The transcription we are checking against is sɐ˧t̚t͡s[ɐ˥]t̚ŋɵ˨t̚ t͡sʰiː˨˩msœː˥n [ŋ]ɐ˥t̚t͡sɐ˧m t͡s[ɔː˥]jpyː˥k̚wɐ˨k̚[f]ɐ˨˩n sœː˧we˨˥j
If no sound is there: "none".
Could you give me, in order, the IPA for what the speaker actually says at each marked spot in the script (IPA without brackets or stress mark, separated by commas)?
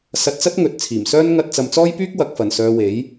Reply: ɐ˥, ŋ, ɔː˥, f